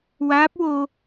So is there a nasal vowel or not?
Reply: no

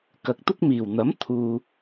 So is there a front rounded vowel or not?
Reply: no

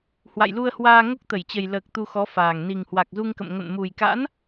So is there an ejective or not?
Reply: no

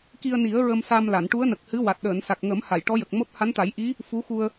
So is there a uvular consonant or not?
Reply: no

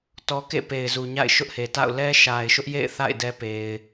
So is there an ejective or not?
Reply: no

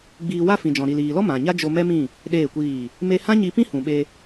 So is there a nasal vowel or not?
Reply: yes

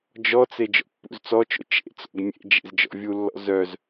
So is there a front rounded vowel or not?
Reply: yes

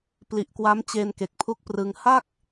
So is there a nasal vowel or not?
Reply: no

